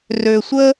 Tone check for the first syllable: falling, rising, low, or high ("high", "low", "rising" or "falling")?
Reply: low